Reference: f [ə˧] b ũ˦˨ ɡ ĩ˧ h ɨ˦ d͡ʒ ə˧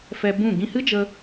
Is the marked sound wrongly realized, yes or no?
yes